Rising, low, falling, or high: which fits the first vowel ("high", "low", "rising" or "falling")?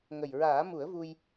low